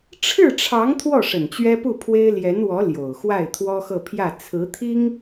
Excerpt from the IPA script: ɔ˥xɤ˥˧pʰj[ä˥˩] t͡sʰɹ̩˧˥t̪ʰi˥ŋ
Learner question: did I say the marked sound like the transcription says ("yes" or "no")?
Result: yes